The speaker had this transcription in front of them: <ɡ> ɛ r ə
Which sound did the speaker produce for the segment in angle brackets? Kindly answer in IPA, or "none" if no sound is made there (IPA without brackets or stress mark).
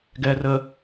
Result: ɡ